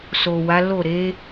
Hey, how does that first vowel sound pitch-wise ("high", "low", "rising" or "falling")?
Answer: low